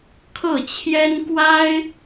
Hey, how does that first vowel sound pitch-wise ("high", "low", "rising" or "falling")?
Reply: falling